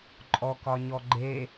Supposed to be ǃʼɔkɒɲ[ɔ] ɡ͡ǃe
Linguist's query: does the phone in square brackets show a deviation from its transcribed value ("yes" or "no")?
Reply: no